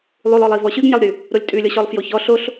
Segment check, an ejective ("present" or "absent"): present